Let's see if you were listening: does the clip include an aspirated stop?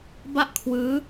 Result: yes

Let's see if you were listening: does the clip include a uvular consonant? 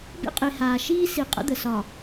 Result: yes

